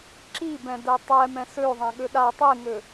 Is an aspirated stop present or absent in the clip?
absent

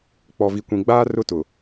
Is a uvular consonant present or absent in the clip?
absent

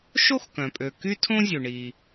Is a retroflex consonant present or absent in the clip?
present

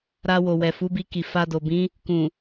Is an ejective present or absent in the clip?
absent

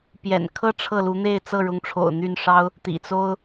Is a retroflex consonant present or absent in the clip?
present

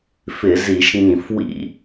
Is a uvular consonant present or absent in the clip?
absent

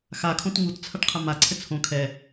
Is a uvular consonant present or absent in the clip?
present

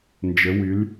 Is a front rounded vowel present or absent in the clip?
present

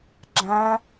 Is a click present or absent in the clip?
present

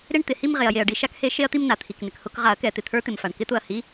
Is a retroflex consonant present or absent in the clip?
present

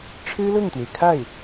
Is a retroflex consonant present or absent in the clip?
present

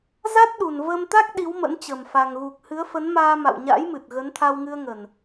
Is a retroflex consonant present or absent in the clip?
absent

